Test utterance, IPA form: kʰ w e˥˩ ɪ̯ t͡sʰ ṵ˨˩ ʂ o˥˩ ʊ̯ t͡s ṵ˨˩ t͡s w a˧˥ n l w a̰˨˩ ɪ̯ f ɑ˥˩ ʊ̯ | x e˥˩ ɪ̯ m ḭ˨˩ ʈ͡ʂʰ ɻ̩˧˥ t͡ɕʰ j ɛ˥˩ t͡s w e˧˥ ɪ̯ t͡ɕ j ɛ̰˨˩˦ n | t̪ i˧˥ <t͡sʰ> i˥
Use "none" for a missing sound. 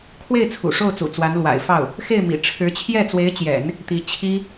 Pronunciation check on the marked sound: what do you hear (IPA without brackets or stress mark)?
t͡ɕʰ